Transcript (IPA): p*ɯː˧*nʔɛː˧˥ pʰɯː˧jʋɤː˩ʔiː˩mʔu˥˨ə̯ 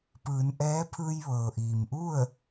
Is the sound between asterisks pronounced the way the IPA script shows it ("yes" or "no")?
no